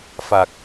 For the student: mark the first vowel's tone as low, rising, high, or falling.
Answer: low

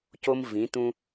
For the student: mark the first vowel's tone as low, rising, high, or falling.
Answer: high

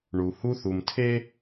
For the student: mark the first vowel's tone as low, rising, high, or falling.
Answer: low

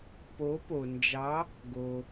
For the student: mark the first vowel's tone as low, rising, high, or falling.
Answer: rising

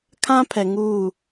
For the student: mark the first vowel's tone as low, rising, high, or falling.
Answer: high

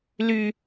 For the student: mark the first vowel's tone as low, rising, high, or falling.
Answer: high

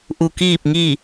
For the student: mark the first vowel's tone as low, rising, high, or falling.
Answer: low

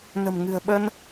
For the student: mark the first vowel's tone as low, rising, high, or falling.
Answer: low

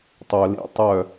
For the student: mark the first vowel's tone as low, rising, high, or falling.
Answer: low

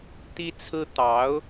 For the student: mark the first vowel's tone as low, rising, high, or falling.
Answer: high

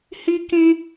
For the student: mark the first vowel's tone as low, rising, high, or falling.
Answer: high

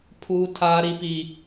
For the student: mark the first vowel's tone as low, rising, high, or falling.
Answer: low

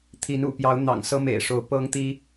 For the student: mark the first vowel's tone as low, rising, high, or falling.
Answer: rising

